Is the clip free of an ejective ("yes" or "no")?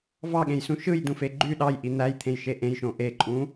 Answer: no